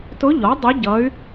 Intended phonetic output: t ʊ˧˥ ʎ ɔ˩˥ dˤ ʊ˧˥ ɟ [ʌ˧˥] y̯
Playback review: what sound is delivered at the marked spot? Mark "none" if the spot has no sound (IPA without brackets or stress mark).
ʌ˧˥